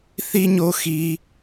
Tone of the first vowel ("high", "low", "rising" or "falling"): high